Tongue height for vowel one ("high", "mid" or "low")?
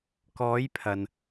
mid